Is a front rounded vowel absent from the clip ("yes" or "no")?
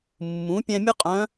no